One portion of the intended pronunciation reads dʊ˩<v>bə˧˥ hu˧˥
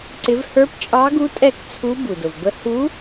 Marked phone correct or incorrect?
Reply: correct